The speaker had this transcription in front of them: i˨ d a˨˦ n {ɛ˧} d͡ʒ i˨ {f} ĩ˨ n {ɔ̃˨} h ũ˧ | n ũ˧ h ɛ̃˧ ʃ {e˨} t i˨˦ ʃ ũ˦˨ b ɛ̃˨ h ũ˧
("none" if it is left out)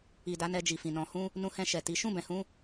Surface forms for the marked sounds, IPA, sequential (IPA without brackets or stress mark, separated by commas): ɛ˧, f, ɔ̃˨, ɛ˨